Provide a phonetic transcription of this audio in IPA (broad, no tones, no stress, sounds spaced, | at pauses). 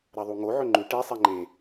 ɾ ɐ ðˤ u ŋ o ʕ ɵ ŋ͡ǃ ʉ ʈ e sˤ e ŋ͡ǃ ẽ